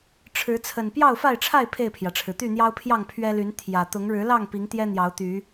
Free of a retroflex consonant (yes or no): no